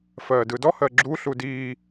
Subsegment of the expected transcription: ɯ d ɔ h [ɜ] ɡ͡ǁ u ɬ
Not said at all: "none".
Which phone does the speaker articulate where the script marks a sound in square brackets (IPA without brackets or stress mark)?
ɜ